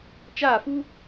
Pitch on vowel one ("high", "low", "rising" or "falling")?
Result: falling